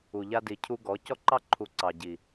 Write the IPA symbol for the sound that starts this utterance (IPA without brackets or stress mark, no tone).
u